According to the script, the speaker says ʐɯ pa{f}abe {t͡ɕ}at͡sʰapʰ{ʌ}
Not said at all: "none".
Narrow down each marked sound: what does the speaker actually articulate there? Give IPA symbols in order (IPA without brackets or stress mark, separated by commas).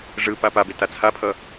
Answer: p, t, ʌ